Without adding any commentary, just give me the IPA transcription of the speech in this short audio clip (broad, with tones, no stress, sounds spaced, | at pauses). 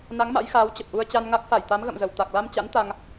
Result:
n a˨˦ ŋ m a̰˧˥ j x aː˨˦ w t͡ɕ ə˨˩ p̚ ʔ u˧ ə̯ t͡ɕ a˧ n ŋ a˦˥ k̚ f a˧˩ j t̪ a˨˦ m ɣ ə̰˧˨ m z ə˧˩ w t̪ a˨˩ k̚ l a˧ m t͡ɕ a̰˧˥ n t̪ a˧ ŋ